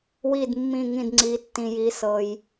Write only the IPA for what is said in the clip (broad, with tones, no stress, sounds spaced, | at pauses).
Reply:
w i˥˨ d mː ĩ˥˨ ŋ ĩ˥˨ d ŋ͡ǀ i˧˥ tː ĩ˧ j i˧˥ s ɤ˧ j